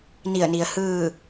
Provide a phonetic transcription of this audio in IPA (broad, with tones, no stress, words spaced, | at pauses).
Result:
ni˧˩ə̯ni˩ə̯hɯː˥˨